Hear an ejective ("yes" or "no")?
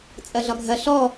yes